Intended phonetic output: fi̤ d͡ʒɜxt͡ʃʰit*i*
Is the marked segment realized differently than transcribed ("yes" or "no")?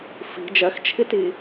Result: no